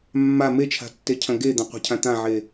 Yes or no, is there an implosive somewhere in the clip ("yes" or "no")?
no